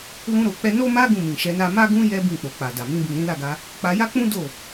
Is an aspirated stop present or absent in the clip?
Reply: absent